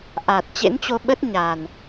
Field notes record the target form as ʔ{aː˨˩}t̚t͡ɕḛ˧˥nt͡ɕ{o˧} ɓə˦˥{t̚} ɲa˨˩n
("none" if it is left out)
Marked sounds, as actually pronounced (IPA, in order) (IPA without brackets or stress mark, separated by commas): aː˨˩, o˧, t̚